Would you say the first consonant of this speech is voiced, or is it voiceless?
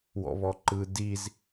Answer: voiced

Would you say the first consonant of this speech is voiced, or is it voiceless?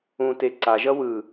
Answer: voiceless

